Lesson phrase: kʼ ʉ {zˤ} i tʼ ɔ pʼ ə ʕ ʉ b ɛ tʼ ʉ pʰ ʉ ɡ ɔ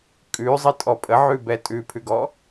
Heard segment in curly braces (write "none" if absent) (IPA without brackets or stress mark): zˤ